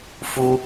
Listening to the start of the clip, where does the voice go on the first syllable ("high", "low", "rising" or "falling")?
high